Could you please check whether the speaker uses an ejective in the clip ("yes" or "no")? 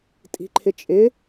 yes